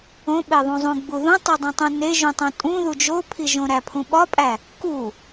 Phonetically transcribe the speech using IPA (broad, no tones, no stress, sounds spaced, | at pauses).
õ ɓ e ðˤ ũ zˤ ũ ɡ͡b u ð ũ tˤ i dˤ õ tˤ ũ n e ʒ ũ tˤ õ tʼ ũ ð u d͡ʒ o pʰ i ʒ õ ɾ æ pʰ ũ ɓ ɒ pʼ æ | k u